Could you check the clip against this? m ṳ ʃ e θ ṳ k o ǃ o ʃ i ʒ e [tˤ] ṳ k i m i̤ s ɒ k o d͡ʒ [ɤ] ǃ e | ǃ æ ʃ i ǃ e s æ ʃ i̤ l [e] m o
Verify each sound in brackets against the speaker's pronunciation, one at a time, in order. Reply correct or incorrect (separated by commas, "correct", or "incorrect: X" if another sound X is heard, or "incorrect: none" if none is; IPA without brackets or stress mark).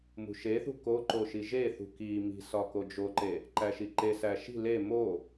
incorrect: θ, incorrect: o, correct